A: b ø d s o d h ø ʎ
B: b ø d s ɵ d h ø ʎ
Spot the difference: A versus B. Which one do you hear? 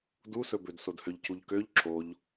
A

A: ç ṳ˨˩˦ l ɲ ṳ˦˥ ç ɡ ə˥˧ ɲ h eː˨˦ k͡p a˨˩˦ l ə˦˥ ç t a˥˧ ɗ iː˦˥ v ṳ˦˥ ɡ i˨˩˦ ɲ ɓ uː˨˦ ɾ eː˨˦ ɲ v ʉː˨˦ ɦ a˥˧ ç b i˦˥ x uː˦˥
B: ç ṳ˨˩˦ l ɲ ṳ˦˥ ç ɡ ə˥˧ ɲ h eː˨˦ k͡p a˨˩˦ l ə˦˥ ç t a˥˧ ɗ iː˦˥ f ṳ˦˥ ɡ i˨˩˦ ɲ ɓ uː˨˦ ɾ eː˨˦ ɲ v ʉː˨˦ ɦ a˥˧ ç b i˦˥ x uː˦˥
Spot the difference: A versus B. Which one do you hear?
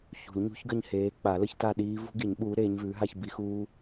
A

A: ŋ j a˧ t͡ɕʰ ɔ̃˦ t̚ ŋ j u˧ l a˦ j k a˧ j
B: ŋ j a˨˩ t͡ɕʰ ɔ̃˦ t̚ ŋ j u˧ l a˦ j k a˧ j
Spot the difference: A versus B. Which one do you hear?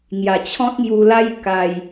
B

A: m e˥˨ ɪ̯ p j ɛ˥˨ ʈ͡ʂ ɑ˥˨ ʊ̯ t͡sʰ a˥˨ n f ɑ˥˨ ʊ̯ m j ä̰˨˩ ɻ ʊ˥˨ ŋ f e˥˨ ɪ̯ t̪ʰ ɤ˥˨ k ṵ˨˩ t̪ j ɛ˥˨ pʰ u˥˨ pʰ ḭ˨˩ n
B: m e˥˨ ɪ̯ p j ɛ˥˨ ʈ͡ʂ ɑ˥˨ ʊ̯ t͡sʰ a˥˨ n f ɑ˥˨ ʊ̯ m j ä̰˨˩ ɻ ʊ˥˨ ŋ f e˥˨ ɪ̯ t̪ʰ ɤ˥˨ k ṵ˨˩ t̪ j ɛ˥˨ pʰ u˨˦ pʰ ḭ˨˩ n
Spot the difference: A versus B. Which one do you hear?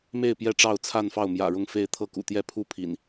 A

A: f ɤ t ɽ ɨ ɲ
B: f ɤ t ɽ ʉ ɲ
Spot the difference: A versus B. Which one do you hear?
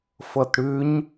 B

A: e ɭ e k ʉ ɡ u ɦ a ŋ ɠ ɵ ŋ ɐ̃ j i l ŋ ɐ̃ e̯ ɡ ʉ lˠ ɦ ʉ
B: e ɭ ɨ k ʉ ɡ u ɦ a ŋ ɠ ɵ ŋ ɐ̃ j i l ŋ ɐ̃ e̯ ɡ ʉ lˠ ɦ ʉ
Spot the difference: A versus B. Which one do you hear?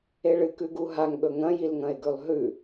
B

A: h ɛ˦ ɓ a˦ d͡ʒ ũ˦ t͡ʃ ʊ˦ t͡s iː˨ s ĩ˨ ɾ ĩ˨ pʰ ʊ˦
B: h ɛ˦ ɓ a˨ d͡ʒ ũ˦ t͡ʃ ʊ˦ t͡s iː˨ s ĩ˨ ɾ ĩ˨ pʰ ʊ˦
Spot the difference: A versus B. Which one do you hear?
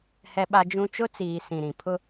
A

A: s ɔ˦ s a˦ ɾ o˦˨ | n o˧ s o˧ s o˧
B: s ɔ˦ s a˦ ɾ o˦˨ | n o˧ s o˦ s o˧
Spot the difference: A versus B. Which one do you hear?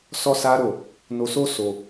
B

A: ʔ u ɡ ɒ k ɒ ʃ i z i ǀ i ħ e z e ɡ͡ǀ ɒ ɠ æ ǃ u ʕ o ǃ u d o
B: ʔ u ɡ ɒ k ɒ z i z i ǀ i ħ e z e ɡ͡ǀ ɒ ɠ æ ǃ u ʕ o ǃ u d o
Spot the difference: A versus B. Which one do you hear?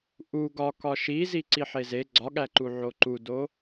A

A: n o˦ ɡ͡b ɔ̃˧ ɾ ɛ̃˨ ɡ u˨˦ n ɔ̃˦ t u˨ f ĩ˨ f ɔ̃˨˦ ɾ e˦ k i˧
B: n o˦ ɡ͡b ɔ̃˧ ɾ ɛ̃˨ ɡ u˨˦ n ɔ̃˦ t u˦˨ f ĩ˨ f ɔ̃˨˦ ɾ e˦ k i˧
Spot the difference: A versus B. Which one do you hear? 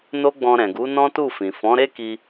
B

